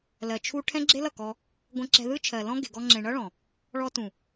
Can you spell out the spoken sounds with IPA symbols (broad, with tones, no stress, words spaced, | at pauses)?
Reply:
lɜ˨t͡ʃʰu˧ ʈʰɛ̃˦ɡ͡ǁe˦lʌ˦˨kɔ˧ | ɡʷɛ̃˧ǁɛ̤˧ðɯ˦ t͡ʃʰɜ˨lɔ̃˦ ɡe̤˨ɡɔ˧ŋ͡ǁẽ˨ ɳʌ˦ɭɔ̃˨ | ɭɔ˧tũ˨